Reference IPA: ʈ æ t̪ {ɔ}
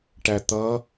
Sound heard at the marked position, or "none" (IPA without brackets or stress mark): ʌ